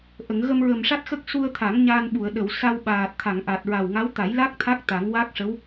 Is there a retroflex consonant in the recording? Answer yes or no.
yes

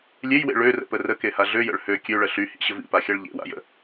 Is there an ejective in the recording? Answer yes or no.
no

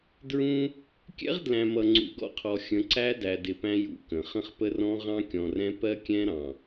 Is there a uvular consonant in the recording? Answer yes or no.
yes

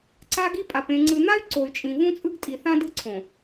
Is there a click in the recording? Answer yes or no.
yes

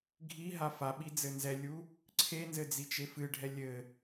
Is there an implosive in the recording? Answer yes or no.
yes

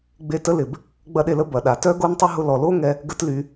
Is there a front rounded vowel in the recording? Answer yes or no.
yes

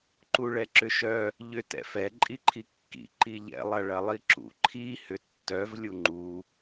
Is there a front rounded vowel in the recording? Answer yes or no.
yes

